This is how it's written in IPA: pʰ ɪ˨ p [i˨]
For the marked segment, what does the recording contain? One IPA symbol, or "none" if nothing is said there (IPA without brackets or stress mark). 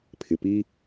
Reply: i˦